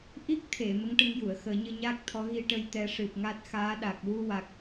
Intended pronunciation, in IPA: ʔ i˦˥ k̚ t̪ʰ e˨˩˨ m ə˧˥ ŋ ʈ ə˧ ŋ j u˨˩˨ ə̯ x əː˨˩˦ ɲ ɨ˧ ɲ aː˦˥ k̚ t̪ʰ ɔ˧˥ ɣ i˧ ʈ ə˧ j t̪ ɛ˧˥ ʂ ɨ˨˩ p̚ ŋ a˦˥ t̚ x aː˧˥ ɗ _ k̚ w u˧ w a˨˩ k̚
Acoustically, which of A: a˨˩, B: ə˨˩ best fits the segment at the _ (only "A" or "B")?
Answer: A